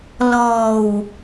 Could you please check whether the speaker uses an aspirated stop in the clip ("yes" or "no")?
no